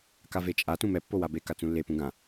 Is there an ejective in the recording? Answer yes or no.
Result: yes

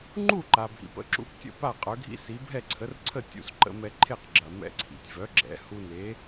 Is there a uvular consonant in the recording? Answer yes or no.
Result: yes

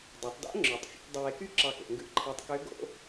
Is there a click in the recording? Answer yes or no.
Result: yes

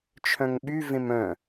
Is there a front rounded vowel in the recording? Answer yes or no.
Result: yes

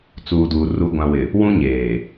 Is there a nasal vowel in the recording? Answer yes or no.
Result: yes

